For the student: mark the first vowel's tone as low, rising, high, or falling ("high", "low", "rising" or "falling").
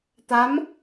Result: rising